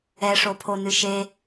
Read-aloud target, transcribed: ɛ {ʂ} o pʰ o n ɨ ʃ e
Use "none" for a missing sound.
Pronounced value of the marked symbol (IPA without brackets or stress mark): ʂ